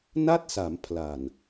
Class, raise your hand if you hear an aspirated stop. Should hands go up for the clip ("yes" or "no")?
yes